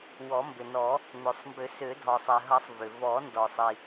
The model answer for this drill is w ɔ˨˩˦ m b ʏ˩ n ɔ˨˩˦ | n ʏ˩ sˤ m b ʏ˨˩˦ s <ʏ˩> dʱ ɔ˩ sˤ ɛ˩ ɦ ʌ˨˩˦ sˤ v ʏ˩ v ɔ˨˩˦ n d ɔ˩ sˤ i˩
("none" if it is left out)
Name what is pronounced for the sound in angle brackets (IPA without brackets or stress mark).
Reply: ʏ˨˩˦